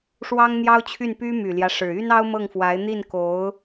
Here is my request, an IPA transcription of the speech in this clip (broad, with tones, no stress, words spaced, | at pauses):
ʂwɑ˥ŋn̪jɑ˥ʊ̯t͡ɕʰy˥˩n py˥my˨˩ljä˦ ʂɻ̩˨˩ y˥nɑ˥ʊ̯mɤ˥˩ŋfwa˧˥ɪ̯ n̪i˥˩nko˧˥ʊ̯